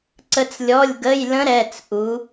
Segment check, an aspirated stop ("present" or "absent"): absent